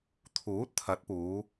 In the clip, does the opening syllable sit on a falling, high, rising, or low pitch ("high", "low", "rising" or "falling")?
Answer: rising